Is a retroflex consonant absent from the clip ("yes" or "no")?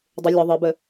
yes